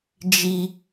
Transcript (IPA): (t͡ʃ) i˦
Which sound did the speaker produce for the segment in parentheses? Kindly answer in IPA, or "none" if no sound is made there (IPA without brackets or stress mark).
d͡ʒ